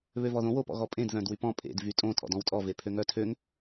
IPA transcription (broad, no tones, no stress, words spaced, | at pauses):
βøvɔðõ wopɔ̰ɣɔpʼẽd ðœ̃dwypɔ̃ pʼḛd vytʼõ tʼɔ̰dɔ̃wtʼɔ vepʰøŋœtʰøŋ